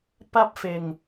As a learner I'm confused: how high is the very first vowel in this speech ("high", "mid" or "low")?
low